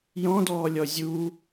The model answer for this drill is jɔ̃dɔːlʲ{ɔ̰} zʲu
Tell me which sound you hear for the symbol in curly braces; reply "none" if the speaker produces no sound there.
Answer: ɔ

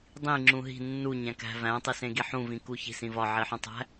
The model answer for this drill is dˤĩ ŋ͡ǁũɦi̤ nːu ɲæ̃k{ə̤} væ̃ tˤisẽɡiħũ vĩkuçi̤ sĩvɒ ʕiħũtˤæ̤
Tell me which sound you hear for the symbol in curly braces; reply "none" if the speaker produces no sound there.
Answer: æ̤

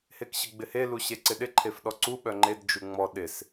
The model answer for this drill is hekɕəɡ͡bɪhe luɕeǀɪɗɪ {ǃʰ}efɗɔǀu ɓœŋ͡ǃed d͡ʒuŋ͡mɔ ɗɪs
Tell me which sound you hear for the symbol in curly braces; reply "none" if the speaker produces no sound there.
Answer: ǃʰ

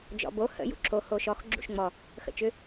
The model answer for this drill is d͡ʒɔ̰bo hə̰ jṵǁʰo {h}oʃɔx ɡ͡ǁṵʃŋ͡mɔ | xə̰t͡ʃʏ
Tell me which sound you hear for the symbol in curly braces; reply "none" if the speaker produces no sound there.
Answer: h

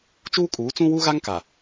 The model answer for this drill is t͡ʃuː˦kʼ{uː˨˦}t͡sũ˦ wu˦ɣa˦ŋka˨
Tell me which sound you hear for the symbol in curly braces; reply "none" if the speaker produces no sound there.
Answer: uː˨˦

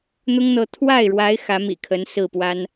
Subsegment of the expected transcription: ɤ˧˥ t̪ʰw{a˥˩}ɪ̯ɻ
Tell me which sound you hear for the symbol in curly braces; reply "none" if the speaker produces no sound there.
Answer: a˥˩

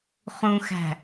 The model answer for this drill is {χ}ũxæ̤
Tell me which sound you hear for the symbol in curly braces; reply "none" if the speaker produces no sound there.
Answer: χ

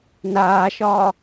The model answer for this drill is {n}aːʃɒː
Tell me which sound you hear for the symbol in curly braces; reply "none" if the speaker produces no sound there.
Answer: n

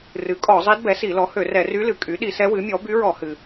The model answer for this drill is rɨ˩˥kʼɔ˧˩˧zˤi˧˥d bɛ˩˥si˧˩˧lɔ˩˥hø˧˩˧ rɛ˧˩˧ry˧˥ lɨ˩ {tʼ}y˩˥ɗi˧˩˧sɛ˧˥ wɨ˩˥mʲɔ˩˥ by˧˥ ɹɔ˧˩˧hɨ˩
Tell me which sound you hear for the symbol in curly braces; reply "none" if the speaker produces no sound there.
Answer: kʼ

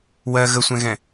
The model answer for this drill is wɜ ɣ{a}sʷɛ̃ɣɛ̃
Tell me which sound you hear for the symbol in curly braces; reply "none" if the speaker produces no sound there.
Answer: ə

